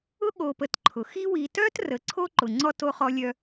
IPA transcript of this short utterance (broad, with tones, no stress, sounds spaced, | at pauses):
ʊ˥ ɠ o˨ p ə˨ t ǃʰ ʊ˩ x i˦ w i˨ t œ˥ t r ə˩ ǀʰ o˥ ǃ ʊ˩ ŋ͡ǀ ɔ˥ t o˦ χ ɔ˦ lʲ œ˦